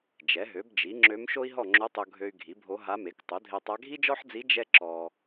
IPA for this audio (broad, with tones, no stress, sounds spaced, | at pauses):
d͡ʒ ɛ˩˥ ɦ ø˩˥ b d͡ʒ i˩˥ ŋ͡ǁ ø˧˥ m ʃ o˥ i̯ ɦ ɔ˥˨ ŋ͡ǁ o˧˥ tˤ o˧ ɡʱ ø˧ y̯ ɡʱ i˩˥ bʱ o˧˥ ɦ a˧˥ m e˩˥ k tˤ o˩˥ dʱ e˧ tˤ a˧˥ ɡʱ i˥ d͡ʒ ɔ˥ ħ d͡z i˧˥ d͡ʒ ɛ˥ ǁ ɔ˧